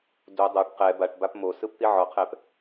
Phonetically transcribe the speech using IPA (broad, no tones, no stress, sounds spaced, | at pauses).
d u dˤ ɤ ʈ q ɛ b a ʈ b a p m o s ɯ p t̪ i ʕ ɔ qʰ ɛ p